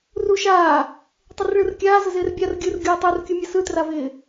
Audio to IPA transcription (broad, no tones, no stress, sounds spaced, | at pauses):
r u ʃ aː | tˤ ɪ r ɭ ɯ r kʲ aː z ə z ɪː r bʲ a r ɡʲ ɯ r ɡʲ uː tˤ ɯ r kʲ u mʲ ɐ s ɯ t r a v ɪː